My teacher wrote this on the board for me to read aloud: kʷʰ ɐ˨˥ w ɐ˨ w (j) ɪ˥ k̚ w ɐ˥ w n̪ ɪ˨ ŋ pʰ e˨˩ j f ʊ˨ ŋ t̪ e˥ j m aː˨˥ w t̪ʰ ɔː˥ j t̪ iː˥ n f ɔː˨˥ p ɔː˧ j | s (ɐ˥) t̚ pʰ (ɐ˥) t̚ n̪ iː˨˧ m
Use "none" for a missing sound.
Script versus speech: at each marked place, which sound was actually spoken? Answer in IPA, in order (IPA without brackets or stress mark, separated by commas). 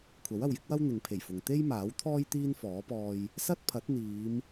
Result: j, ɐ˥, ɐ˨˥